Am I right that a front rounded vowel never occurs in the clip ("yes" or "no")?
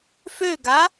no